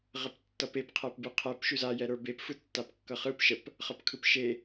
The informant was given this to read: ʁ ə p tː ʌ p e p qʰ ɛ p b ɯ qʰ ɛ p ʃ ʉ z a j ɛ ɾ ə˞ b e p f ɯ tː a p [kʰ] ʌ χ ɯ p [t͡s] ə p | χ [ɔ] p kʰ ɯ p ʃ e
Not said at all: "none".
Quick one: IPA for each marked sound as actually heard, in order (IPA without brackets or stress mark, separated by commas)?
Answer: kː, ʃ, ʌ